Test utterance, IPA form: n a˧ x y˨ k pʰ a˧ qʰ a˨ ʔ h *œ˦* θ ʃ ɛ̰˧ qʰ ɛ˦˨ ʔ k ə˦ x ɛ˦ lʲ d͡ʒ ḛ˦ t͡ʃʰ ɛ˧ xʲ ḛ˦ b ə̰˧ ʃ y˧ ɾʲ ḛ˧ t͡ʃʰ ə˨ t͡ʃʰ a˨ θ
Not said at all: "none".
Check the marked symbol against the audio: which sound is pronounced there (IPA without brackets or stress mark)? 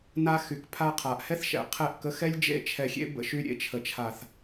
ɛ˦